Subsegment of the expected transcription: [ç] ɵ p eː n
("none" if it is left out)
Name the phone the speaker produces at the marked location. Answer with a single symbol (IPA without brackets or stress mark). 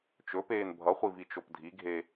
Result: t͡ʃ